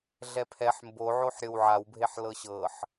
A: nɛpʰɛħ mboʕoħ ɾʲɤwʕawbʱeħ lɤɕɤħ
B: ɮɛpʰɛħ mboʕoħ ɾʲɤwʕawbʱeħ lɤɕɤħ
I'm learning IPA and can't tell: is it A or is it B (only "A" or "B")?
B